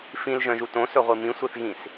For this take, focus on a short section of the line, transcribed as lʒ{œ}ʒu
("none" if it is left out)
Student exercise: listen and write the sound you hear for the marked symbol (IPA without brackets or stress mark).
œ̃